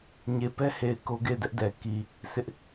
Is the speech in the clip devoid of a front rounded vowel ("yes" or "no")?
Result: yes